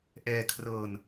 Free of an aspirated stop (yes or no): no